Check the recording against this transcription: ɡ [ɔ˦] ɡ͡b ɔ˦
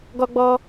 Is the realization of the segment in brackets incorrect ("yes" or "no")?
no